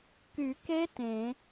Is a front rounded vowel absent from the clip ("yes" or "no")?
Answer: no